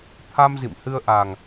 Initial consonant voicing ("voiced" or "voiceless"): voiceless